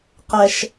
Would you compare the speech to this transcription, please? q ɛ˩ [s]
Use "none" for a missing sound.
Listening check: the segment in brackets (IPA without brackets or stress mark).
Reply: ʃ